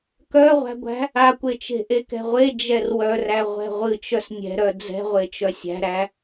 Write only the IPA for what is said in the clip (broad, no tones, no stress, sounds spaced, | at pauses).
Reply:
k œ ʁʷ æ̤ ɡʷ æ̤ | a kʷ e t͡ʃ e̤ ʔ e k ɛ̤ ʁʷ e d͡ʒ ɛ r w œ r æ ʁʷ ɛ̤ ʁʷ ɨ t͡ʃ œ s nʲ ɛ̤ ɾ œ d͡z ɛ̤ ʁʷ e t͡ʃ œ sʲ æ̤ ɾ æ